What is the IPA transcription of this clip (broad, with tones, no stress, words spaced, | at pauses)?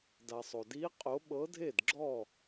da˨sˤo˨ di˧˥ qʼo˧˥ ɓɤ˧˥dʱe˥˨dɡ͡ǁɔ˥˨